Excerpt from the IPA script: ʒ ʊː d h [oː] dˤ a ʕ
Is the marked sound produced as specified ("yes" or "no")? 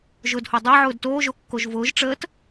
no